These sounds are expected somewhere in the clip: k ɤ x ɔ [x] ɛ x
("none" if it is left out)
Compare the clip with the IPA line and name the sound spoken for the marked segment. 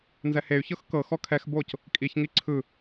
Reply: kʰ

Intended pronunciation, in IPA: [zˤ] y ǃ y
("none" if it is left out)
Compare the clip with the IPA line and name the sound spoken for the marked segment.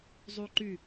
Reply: zˤ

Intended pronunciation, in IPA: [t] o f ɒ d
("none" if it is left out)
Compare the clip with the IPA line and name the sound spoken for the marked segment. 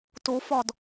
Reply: t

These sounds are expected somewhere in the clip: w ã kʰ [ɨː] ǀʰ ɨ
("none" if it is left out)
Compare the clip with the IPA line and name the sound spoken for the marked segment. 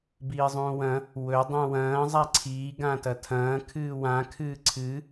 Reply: ɨː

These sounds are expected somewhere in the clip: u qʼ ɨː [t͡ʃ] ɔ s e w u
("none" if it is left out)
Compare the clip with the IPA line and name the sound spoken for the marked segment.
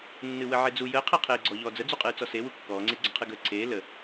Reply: t͡s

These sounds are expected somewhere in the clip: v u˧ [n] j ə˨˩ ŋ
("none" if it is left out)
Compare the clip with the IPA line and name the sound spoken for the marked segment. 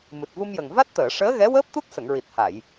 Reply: m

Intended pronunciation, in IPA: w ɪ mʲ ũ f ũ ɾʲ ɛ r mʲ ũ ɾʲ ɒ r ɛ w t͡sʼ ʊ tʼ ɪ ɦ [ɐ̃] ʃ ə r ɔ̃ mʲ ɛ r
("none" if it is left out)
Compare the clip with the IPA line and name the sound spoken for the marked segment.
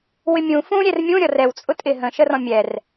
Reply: ə̃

